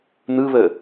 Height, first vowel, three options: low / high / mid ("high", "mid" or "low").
high